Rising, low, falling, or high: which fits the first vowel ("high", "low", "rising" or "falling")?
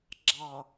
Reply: low